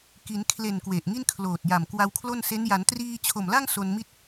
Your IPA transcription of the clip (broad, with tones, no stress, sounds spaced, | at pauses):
k i˩˦ n kʰ l e˨˩ n k w e˨˩ ʔ ŋ i˥˩ n kʰ l oː˨˩ t̚ j a˨˩ m k w a˧ w kʰ l o˥˩ n s e˦˥ n j a˩˦ n t r iː˧ t͡ɕʰ o˨˩ m l a˥˩ ŋ s o˧ n m i˥˩ t̚